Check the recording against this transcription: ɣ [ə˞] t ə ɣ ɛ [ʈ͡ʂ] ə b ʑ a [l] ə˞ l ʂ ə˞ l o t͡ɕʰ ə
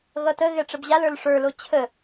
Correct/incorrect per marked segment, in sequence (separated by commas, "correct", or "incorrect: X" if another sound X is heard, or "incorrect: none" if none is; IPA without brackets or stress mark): incorrect: ʌ, correct, correct